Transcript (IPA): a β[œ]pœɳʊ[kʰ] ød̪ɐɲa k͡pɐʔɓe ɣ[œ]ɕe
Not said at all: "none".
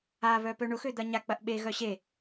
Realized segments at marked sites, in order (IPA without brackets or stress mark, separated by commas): œ, x, œ